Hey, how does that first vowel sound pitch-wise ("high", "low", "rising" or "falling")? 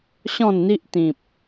falling